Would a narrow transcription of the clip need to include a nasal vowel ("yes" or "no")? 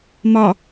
no